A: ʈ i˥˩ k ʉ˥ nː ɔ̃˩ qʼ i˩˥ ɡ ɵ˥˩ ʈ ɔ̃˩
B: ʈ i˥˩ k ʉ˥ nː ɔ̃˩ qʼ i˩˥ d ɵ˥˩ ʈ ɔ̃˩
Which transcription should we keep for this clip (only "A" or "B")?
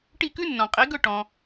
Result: A